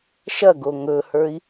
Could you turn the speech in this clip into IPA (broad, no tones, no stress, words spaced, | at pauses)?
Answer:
ʃɐɡo ŋɵhə˞i̯